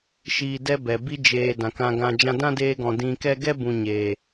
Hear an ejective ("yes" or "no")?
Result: no